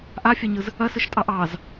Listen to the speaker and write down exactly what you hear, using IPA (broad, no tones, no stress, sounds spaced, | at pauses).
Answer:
ʔ a fʲ ɛ ɲ ɯ z | ɐ s ɯ ʃ tʼ ɑ ʔ ɑ z